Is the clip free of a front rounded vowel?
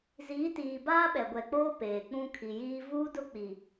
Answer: yes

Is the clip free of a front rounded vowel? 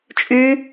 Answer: no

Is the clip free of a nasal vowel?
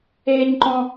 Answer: no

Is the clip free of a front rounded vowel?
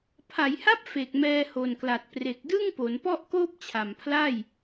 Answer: yes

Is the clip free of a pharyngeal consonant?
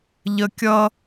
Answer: yes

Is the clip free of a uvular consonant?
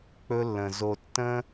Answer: yes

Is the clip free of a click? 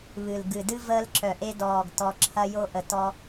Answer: no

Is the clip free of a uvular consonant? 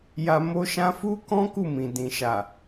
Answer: yes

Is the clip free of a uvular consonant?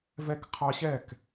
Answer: no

